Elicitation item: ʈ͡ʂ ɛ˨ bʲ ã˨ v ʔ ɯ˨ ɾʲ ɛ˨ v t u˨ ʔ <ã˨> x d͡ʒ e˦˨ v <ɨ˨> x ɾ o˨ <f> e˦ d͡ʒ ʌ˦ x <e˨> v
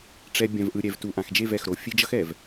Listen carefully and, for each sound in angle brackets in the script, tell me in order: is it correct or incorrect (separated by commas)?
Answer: correct, incorrect, incorrect, incorrect